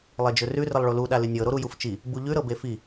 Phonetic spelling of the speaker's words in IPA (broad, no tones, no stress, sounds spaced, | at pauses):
lˠ e d͡ʒ ɵ r ʉ r ə lˠ ɭ o l u ɗ a l ɨ nʲ ɤ ɾ o ɾ u j u f t͡ʃ i | b u ʎ ʉ ɾ ɤ b e f i